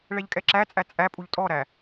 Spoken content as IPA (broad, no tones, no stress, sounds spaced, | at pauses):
ɭ ɛ ʎ kʼ ɛ ǁ æ t͡sʼ æ t͡sʼ æ pʼ u ʎ tʼ ɔ ɾ æ